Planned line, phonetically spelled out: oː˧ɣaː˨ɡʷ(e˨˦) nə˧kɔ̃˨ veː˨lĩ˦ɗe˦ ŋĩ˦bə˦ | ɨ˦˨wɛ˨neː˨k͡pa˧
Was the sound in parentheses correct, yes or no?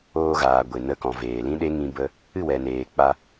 no